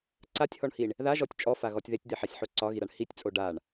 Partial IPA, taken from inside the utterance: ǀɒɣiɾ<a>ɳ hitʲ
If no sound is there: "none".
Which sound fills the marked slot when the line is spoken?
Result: a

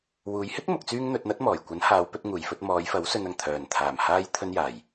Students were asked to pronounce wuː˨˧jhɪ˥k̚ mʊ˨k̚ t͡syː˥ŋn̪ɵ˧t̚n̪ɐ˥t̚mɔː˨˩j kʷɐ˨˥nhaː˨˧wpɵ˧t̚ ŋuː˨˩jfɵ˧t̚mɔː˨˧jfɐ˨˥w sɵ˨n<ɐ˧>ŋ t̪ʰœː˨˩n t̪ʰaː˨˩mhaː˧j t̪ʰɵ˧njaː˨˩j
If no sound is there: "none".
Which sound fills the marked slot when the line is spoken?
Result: ɐ˨˩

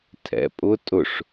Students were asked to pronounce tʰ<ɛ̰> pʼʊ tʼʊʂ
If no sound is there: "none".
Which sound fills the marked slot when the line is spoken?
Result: ɛ̰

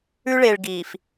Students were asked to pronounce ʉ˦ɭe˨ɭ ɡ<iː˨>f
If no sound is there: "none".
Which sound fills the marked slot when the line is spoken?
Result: iː˨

